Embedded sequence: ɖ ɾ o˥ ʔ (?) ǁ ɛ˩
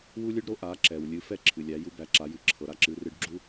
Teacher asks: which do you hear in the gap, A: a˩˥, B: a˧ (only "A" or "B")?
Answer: A